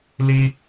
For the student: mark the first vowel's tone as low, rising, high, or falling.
high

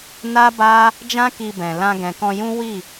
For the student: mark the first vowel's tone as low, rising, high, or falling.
high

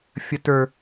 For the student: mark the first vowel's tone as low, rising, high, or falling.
high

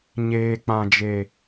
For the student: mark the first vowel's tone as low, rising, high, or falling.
low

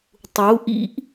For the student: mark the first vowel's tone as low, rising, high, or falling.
rising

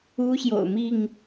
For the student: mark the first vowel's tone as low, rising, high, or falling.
high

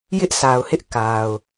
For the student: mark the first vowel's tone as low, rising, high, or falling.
high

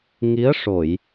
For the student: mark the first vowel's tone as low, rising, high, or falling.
rising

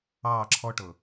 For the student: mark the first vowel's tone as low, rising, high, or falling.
falling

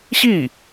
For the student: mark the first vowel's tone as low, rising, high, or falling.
falling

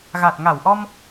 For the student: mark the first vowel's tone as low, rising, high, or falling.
low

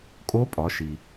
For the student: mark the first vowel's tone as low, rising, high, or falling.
rising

